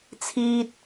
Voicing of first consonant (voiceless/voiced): voiceless